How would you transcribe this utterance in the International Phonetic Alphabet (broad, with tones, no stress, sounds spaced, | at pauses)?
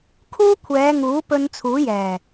kʰ uː˥ kʷʰ ɛː˨˧ ŋ uː˨˥ p ɵ˧ n t͡sʰ uː˨˥ j ɛː˨˩